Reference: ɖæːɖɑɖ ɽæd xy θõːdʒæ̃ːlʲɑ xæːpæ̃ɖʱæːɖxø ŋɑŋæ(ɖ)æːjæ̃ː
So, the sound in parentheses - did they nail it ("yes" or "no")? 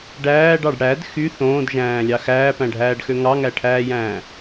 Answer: no